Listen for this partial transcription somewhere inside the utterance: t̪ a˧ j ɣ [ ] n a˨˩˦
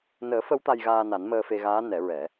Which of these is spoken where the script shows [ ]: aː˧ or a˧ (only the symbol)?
aː˧